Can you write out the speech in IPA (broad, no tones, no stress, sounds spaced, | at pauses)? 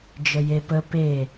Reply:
d͡ʒ ə j e p ə p e